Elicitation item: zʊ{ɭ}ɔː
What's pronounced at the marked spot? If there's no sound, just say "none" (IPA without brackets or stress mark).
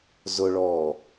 ɭ